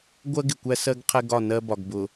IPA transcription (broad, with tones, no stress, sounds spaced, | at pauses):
ɡʷ ɜ˦ ɡ ɪ˨ kʷ æ˦ s ɜ˦ ɡ qʰ ɛ˦ ɡ ɒ˦˨ n ɜ˦ b ɒ˨ ɡ b ʊ˨